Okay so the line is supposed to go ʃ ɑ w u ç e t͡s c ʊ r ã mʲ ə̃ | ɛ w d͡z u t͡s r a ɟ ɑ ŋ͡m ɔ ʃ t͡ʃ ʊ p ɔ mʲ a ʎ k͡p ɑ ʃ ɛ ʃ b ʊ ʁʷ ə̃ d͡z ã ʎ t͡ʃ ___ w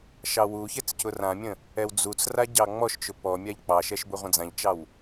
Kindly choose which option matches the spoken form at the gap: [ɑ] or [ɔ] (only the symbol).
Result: ɑ